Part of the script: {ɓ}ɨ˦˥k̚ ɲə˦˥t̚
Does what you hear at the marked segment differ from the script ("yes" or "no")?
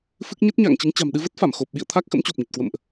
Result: yes